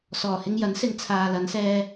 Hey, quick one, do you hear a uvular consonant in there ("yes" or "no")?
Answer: no